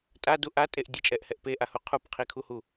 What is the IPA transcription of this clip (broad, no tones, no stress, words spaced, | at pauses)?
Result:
tʼadu ʔatʼeʔ dʲət͡ʃʼɛʔhɛʔ peʔahu qʰupqʰikʰuhu